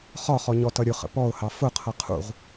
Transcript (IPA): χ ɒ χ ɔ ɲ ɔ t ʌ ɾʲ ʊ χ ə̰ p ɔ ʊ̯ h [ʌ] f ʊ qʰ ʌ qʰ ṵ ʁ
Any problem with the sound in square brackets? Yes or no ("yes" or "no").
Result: yes